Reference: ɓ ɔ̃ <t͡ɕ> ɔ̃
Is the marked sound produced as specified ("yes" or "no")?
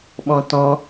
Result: no